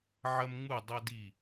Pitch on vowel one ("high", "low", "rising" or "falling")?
high